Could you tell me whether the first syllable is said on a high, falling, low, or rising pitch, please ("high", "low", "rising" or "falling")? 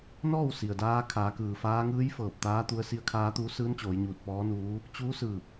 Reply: falling